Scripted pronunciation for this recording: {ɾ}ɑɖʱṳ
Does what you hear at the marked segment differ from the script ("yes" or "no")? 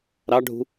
no